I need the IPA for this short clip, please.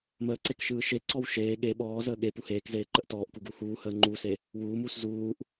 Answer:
məːǀek ʃɯːʃeǀɔw ʃeː ɠe ɓɔːzəː ɠe puheːkzeː ǃəʔtɔːʔku ɡuhuːhəː ŋ͡ǃuse | wuːmuːs zuːʔ

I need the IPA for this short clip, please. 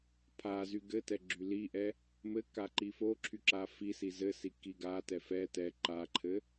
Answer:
pʰazy ɡɘtɛ ɡ͡ǁyliʔɛ | mɘka ǃifoǁʰy ǁafisi zɘsi kiɡatɛ fɛ tɛ ǃaǃʰɘ

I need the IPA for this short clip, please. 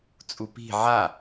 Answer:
t͡sʼupi̤ ʕa

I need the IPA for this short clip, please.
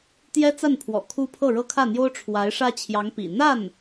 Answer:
t̪jɛ˥t͡sa˥˩npʰwɔ̰˨˩ kʰu˥ pʰɤ˥˩ɻɤ˥kʰä˥˩n̪jo˥ʊ̯ ʈ͡ʂʰwa˧˥ɪ̯ʂä˥ t͡ɕʰjɑ˧˥ŋpḭ˨˩ n̪a˥˩n

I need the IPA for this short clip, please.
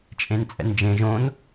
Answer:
t͡ʃʼẽnt͡sʼɛ̰nd͡ʒẽʒ õn

